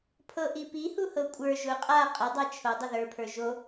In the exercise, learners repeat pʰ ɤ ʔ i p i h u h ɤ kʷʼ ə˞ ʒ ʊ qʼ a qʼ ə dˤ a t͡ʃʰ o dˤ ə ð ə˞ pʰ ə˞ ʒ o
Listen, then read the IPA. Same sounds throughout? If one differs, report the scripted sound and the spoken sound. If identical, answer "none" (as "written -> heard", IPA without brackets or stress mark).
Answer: none